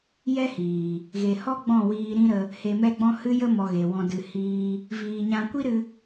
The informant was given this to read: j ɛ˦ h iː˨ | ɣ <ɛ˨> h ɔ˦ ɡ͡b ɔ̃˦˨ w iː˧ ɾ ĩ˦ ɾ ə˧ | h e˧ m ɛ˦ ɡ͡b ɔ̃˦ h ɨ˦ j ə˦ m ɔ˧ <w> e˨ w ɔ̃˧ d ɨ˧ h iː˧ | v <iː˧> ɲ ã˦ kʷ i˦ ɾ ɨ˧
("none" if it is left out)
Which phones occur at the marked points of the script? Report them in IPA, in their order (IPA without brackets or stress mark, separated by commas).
e˨, ɣ, iː˧